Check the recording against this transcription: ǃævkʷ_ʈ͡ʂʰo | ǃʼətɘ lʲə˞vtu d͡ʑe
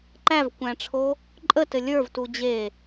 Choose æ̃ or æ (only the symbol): æ̃